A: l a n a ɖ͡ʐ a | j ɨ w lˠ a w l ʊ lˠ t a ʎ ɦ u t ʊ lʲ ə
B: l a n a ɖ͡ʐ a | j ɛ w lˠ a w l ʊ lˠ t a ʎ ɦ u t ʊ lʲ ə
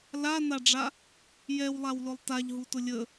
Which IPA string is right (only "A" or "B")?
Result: B